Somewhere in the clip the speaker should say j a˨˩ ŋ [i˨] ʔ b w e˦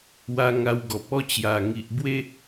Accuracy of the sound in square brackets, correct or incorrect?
correct